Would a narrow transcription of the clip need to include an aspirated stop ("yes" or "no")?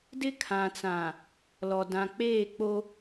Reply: yes